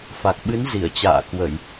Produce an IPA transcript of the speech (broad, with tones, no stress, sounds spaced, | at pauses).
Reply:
f a˨˩ k̚ ɓ ɨ˨˦ n z i˧˩ ə̯ t͡ɕ a̰ː˧˨ k w ə˧˩˨ j